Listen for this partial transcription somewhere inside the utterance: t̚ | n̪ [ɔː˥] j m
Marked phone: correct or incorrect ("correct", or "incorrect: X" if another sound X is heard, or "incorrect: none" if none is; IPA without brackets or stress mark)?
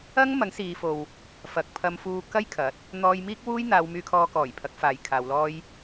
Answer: incorrect: ɔː˧